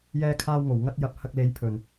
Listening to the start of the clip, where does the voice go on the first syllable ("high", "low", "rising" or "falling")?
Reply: high